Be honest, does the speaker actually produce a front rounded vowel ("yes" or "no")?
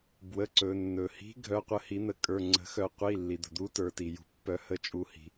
yes